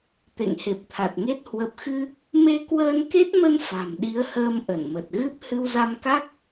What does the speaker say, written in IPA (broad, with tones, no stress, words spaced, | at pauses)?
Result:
t̪ḛ˧˨ŋhe˨˩p̚t̪ʰa˨˩t̚ŋe˦˥t̚ hwə˨˩p̚xɨ˧ | me˧kwəː˧nke˦˥t̚mə˧n fa̤˨˩mɗi˨˦ə̯həː˧m ʔə˧˩nmə˨˩t̚ɣɨ˦˥p̚ hɨ˧wza˧mka˦˥k̚